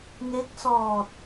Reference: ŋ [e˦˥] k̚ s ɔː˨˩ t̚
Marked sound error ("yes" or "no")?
no